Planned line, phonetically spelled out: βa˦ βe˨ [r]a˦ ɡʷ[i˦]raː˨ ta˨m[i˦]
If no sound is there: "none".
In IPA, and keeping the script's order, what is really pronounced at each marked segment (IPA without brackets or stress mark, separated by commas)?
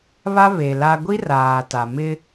l, i˦, ɪ˦